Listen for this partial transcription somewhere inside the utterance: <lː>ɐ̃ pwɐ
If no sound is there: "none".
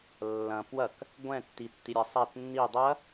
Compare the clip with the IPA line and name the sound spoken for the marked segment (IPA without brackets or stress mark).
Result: lː